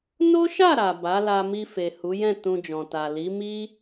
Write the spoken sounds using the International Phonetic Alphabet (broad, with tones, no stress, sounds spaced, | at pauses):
n o˦ ʃ a˦˨ ɾ a˨ b a˨˦ l a˧ m i˧ f e˨ h u˨˦ j ɛ̃˦˨ t ũ˧ d͡ʒ ɔ̃˨ t a˨ l i˨˦ m i˦